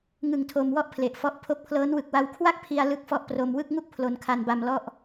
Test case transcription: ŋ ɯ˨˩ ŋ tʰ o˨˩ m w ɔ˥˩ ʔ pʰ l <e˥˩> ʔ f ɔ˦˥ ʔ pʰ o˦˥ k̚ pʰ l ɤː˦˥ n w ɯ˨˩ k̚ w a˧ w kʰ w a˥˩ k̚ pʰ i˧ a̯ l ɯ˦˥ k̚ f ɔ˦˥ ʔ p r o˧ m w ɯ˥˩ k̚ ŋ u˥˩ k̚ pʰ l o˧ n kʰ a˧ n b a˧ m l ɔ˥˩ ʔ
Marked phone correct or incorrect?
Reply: incorrect